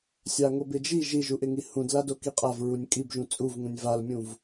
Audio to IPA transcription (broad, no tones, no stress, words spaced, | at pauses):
sʲaŋobɪd͡ʒi ʒiʒuʔɪŋi hũdlado kiqʼav ɹunʲkʼibʒũ t͡sʼuvŋũnʲ valmʲũv